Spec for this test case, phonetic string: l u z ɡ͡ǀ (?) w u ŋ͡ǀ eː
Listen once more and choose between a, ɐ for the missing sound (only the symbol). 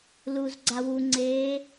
a